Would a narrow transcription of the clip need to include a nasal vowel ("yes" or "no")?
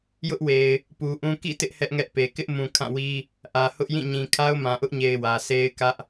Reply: yes